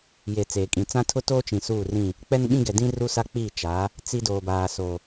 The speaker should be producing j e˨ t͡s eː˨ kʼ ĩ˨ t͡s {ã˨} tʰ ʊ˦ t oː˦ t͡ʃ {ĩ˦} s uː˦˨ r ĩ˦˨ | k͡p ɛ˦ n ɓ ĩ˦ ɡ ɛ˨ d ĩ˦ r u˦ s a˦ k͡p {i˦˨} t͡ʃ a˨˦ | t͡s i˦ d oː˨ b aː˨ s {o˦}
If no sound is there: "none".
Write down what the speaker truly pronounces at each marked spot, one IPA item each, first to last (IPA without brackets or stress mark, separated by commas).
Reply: ã˦, ĩ˨, i˦˨, o˨